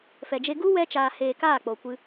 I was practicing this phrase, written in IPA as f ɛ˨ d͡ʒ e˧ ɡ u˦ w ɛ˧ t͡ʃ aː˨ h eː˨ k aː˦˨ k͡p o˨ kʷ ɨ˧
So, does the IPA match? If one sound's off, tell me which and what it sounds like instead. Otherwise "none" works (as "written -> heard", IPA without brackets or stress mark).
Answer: none